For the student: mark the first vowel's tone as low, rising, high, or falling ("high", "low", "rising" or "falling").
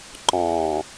low